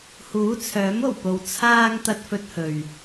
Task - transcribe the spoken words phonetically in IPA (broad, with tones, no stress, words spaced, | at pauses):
huː˨˥t͡sʰœː˨˥mo˨˩wpo˨w t͡sʰaː˧ŋ t̪ɐ˥t̚fɵ˥t̚hɵ˧ɥ